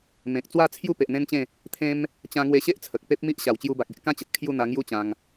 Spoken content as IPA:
mẽ˨k̚t͡swa˥˧ t͡sʰju˥˧pe˨ʔ n̪ẽ˦nt͡ɕẽ˥˧ | t̪ʰẽ˦m | t͡ɕã˧ŋwe˧ɕe˦ʔ t͡sʰə˨k̚pe˦p̚mi˦ʔ ɕa˨˩wt͡ɕju˧ba˨k̚ e˨ʔkã˦t͡ɕə˨t̚ kʰju˥˧n̪a˧ŋju˦ t͡ɕã˧ŋ

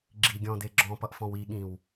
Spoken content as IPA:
ɡ͡ǁiɡʲɔ̃de ɡ͡ǁɔ̃pʌʔfɔ̃w iɠĩw

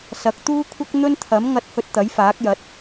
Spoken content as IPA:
sɐ˨˥k̚t̪uː˥kʷʰɐ˥k̚ n̪ɵ˥nt̪ʰɐ˨˥mŋɐ˧t̚hɵ˧t̚ t̪ɐ˨˥jfaː˨˥k̚jɐ˨˥t̚

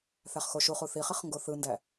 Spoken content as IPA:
θæχxoʃuχu θiχiχ ŋɡoθɯndæ

